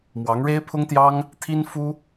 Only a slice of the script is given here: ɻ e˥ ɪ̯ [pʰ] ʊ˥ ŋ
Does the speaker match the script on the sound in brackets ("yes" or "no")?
yes